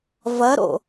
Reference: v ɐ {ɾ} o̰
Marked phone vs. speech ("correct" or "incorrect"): correct